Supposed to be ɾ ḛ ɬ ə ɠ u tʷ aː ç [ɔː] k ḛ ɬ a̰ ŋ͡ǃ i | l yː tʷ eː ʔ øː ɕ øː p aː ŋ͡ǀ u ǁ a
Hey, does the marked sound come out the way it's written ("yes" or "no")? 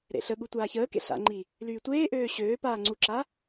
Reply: no